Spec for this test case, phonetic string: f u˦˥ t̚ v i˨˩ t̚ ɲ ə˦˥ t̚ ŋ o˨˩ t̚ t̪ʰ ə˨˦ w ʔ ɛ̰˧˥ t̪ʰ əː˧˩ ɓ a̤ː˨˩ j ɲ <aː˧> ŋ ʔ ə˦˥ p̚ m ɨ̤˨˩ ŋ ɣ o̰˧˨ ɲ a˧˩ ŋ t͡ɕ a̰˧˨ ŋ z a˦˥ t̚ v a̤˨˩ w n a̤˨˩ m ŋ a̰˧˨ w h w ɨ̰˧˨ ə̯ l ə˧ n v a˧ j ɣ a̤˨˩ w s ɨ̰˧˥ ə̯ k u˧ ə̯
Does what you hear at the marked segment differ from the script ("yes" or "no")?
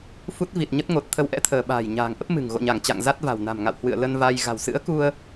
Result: yes